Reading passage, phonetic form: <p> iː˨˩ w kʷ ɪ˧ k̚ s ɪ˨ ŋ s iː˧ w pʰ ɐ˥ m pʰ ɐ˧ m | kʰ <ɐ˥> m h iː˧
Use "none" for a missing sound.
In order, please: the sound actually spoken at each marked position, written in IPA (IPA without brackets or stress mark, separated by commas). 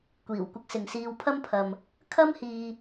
kʷ, ɐ˥